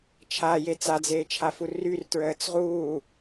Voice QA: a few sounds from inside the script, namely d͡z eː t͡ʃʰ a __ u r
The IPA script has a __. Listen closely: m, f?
f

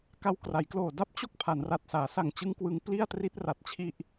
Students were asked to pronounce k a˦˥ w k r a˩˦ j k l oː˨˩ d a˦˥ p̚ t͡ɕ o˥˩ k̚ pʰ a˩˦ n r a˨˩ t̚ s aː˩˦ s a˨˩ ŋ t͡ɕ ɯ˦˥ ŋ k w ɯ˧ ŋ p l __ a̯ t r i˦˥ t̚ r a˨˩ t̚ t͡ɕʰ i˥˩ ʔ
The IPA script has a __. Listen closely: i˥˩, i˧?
i˥˩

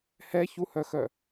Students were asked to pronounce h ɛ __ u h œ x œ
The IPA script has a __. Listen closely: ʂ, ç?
ç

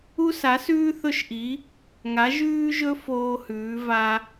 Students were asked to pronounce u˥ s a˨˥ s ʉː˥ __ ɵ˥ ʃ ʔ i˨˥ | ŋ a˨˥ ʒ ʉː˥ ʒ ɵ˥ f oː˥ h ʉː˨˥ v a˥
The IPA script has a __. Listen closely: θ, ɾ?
θ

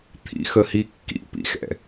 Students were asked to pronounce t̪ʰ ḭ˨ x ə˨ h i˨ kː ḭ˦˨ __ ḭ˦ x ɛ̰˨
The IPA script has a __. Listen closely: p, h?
p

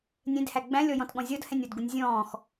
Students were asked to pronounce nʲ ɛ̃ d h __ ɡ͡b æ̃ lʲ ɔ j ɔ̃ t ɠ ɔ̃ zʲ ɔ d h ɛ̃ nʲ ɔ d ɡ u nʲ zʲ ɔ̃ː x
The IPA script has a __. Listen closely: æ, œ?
æ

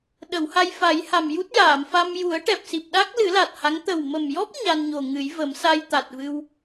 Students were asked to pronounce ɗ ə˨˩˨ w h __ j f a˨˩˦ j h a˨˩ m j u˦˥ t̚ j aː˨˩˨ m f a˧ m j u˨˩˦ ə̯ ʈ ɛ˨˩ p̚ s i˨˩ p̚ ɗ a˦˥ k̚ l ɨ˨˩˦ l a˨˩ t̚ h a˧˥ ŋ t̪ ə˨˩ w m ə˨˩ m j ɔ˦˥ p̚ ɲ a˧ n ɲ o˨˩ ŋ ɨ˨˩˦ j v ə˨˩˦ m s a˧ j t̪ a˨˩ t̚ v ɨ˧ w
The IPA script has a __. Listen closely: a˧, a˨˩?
a˧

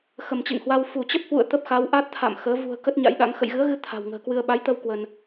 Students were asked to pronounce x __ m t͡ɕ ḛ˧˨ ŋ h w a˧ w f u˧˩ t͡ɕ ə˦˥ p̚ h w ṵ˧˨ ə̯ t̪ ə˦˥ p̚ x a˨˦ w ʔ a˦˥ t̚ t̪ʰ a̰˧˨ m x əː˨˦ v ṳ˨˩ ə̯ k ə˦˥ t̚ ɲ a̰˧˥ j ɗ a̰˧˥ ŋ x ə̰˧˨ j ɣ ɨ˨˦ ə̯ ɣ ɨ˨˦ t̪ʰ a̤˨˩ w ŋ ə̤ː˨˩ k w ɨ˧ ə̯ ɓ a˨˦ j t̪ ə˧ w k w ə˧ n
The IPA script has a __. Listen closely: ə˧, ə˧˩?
ə˧˩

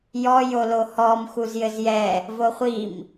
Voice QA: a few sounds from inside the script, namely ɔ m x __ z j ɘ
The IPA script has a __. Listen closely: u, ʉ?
u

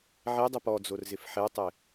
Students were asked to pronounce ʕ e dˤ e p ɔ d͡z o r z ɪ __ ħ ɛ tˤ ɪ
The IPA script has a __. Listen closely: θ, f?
f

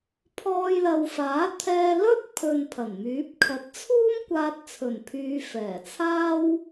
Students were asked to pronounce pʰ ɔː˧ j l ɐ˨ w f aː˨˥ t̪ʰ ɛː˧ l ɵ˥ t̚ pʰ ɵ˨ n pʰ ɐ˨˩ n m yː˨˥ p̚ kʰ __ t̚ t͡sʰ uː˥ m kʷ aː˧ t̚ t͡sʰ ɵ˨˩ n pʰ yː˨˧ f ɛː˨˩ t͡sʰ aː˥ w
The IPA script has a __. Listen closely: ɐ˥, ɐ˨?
ɐ˨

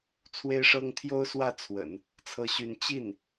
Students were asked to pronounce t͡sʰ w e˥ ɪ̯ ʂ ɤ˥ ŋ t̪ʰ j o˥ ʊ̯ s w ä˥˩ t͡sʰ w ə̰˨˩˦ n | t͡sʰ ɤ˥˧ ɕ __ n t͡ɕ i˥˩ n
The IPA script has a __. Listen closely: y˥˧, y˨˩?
y˥˧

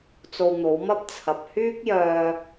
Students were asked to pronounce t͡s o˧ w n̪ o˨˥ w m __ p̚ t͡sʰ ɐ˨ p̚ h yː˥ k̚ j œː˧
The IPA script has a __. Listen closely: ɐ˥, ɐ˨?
ɐ˥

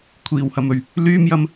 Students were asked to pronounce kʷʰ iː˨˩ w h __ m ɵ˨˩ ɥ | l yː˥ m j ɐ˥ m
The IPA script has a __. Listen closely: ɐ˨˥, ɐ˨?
ɐ˨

